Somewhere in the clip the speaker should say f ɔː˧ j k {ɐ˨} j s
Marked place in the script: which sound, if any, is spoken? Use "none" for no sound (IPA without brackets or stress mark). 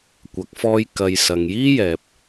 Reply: ɐ˨